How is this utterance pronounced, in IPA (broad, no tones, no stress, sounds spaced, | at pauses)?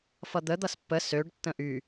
f ʌ d̪ ə d̪ ʌ s pː ə s ø ɖ tː ə̃ ʔ y